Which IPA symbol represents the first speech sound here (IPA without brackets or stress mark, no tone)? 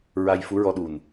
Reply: ɹ